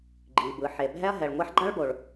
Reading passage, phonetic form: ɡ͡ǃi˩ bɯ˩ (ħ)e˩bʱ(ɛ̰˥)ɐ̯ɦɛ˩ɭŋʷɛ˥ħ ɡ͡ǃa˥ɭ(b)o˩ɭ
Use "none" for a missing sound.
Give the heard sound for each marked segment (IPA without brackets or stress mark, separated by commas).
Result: ħ, ɛ˥, b